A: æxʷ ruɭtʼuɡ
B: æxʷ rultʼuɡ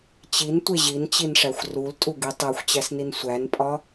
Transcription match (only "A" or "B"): B